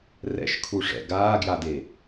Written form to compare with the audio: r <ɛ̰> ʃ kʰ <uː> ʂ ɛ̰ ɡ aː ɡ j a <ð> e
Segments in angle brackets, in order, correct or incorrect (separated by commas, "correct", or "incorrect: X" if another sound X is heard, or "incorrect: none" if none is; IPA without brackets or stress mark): correct, incorrect: u, incorrect: d